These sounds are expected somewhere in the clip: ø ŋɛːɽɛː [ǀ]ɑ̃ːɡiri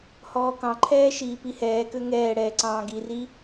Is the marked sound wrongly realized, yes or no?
no